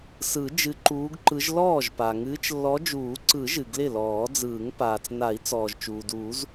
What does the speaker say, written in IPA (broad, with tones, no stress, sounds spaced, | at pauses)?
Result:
s ɯ˨˩˦ d͡ʒ ɨ˨˦ ǃ uː˨˦ ɡ ǃ ɯ˨˦ ʒ l ɔː˥˩ ʒ p a˩ ŋ ɨː˨˦ t͡ʃ lː ɔ˨˦ d͡ʒ uː˨˩˦ ǀ ɯ˨˩˦ ʒ ɨ˩ ɡ l ɪ˥˩ l ɔː˨˩˦ d͡z ɯː˨˩˦ ŋ p aː˩ t͡s n a˨˩˦ i̯ t͡s ɔː˩ ʒ t͡ʃ uː˩ d uː˨˩˦ z